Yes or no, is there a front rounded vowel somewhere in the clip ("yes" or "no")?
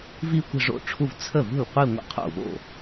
no